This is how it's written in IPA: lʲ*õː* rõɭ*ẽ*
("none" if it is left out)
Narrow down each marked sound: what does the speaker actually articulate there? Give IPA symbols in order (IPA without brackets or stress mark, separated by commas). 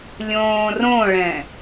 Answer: õː, ɛ̃